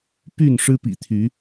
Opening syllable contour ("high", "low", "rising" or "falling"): falling